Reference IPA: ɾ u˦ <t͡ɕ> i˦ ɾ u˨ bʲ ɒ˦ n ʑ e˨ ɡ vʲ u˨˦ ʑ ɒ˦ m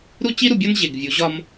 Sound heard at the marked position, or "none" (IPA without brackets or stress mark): t͡ɕ